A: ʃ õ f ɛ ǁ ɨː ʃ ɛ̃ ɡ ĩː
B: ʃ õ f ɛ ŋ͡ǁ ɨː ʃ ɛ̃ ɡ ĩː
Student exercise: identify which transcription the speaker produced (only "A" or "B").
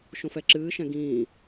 A